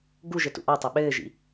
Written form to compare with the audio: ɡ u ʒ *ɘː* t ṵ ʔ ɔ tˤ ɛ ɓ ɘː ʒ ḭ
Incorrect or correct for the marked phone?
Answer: incorrect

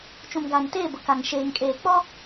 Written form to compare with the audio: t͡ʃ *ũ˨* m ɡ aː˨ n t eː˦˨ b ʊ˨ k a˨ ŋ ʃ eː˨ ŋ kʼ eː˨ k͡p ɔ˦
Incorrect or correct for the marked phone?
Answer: correct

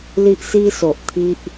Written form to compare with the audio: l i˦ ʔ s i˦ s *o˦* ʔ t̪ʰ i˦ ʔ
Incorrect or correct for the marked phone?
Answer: incorrect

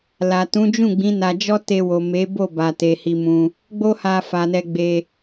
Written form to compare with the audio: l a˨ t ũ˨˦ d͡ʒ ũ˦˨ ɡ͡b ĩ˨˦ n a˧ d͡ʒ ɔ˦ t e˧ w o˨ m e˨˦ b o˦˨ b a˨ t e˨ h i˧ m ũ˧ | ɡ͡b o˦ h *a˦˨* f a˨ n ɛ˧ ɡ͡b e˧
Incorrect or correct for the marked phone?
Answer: incorrect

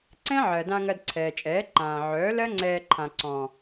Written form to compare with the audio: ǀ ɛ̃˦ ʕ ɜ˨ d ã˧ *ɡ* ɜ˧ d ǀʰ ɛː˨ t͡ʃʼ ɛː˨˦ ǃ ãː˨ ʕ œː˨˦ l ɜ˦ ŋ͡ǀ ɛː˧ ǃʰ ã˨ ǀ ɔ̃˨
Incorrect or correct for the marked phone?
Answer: incorrect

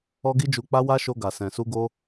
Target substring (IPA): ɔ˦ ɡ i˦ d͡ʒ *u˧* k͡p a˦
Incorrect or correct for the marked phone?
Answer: correct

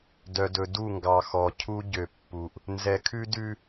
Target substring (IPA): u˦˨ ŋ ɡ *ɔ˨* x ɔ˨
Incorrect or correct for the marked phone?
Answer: incorrect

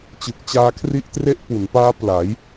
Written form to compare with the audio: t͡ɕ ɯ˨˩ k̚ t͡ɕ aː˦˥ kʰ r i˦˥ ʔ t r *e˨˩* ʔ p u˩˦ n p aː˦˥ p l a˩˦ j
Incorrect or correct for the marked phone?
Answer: incorrect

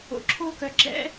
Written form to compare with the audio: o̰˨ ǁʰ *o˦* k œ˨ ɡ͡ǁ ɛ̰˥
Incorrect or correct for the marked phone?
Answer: correct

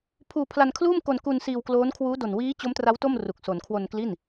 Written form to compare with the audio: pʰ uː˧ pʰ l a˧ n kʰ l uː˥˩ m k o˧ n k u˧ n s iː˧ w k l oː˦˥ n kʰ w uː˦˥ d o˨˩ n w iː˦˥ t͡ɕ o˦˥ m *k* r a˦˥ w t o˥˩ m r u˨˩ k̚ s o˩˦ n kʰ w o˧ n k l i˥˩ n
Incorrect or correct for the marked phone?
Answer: incorrect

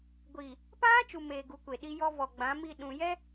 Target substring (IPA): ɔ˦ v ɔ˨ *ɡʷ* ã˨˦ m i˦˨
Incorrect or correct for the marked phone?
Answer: incorrect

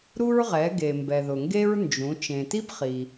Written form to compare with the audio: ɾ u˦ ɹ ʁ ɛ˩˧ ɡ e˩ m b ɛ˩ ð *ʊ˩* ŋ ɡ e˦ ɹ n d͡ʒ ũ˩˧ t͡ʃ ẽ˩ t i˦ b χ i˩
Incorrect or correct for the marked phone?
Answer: correct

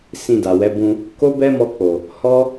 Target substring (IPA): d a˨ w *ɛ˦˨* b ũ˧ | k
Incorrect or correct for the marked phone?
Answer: incorrect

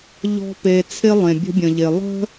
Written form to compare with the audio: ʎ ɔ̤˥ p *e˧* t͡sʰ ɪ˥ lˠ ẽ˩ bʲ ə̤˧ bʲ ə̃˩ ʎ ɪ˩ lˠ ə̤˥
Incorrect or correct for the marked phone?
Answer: correct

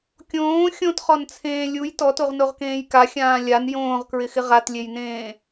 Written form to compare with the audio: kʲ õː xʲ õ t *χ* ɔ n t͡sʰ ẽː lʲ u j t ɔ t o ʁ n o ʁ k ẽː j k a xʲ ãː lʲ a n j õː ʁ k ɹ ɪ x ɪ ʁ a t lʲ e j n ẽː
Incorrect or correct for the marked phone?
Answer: correct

